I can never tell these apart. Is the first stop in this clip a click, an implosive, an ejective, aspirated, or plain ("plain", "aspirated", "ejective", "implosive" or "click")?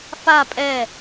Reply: ejective